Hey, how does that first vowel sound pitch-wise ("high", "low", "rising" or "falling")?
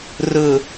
low